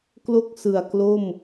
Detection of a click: absent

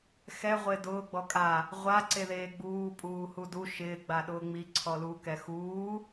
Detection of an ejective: present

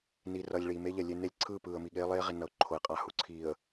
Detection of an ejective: present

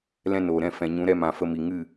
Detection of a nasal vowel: present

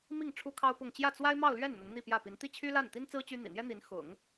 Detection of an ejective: absent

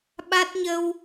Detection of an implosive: present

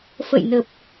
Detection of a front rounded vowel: absent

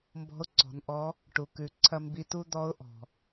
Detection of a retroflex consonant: present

